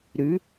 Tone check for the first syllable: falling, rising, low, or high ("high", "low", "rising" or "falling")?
rising